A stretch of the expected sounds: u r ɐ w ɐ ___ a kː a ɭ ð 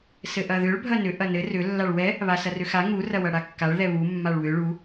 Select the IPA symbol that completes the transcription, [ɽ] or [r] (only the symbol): ɽ